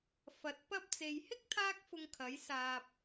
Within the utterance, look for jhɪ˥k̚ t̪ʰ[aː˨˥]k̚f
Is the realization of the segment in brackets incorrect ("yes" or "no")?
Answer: yes